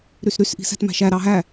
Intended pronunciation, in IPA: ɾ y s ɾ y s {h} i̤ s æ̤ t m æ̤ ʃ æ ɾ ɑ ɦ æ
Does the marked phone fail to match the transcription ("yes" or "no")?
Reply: yes